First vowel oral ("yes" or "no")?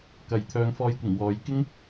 yes